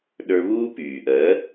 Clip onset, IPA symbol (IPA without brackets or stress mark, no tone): ɗ